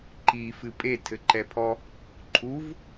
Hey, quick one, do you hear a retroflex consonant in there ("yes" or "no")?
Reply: no